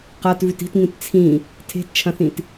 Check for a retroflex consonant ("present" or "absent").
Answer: absent